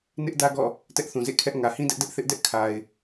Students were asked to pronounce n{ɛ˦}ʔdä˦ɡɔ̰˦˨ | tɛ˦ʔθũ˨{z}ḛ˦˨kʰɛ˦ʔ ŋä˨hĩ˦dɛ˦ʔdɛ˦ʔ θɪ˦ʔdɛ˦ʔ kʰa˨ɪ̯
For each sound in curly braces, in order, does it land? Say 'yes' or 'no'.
no, yes

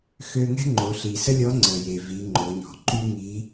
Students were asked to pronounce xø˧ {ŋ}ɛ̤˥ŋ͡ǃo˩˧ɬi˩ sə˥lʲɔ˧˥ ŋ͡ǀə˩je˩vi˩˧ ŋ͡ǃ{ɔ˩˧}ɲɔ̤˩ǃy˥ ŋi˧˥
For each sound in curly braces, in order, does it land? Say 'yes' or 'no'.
yes, no

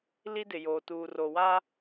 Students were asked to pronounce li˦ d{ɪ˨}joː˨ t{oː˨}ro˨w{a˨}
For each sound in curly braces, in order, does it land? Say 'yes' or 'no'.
yes, no, no

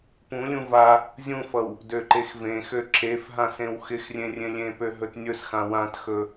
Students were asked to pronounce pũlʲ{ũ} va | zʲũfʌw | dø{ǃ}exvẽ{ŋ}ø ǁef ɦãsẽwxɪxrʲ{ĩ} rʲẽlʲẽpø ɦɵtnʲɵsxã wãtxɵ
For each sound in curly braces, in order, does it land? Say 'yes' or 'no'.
yes, yes, no, no

